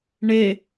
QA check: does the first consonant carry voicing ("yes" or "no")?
yes